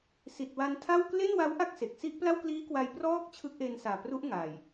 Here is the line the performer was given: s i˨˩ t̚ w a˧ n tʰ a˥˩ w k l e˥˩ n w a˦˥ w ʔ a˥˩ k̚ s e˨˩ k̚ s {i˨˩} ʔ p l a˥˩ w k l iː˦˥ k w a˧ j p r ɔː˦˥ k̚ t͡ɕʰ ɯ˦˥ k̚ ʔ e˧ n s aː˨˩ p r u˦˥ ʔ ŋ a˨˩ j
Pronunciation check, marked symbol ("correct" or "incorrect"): incorrect